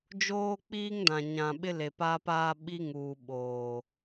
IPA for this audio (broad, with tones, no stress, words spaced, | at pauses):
d͡ʒoː˦k͡piː˦ŋdã˨ ɲã˨ɓɪ˦le˨ pa˦paː˦ɓi˦ŋuː˨ ɓoː˨